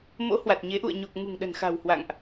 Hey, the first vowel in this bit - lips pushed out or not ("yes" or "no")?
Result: yes